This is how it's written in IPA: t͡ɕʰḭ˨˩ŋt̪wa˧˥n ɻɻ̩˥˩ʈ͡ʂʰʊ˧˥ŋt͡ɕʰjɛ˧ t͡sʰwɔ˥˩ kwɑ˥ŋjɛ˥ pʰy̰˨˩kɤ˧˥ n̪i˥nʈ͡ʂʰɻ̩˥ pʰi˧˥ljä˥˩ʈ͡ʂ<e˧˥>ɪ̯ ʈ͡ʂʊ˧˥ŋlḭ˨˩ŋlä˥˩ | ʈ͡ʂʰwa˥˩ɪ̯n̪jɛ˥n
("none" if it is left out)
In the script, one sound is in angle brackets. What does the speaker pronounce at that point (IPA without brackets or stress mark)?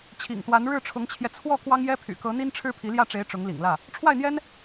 e˧˥